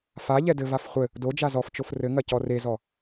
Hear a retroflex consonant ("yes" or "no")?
no